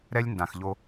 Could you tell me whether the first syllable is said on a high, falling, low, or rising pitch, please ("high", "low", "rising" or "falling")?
high